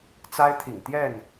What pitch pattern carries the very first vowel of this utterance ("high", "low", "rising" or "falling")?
high